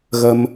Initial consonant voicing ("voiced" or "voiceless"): voiced